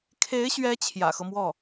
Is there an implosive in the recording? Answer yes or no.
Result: no